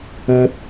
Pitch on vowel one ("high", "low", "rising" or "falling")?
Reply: low